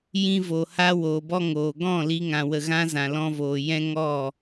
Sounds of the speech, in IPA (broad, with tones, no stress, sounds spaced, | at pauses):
j ĩ˧ v o˨ h a˧ w oː˨ b ɔ˧ ŋ oː˨ ɡ ɔ̃˦˨ l i˦ ŋ ã˧ w ə˧ ɣ ã˦ z ã˨ l ɔ̃˧ v oː˨ j ɛ̃˧ ŋ ɔ˦˨